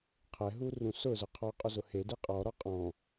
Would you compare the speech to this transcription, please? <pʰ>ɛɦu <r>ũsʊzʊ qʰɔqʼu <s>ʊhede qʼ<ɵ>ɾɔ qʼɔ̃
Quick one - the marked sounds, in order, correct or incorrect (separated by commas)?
incorrect, correct, incorrect, incorrect